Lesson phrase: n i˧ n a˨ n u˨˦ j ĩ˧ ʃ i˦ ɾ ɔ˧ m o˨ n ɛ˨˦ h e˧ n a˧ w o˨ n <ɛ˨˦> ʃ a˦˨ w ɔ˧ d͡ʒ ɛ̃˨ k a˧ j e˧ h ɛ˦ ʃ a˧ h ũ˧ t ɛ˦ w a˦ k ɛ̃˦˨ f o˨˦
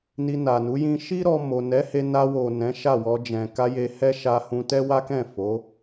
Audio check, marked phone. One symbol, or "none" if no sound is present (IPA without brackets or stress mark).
ɛ̃˨˦